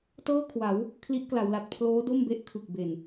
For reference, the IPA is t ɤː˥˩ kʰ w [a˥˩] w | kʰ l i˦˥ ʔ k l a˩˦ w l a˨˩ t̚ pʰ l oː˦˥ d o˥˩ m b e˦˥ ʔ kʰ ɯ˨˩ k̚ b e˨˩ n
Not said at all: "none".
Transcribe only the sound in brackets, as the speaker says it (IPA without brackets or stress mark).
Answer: a˩˦